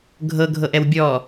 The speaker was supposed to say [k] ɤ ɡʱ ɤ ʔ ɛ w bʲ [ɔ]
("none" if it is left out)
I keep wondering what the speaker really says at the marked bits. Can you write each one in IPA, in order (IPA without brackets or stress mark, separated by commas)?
ɡʱ, ɔ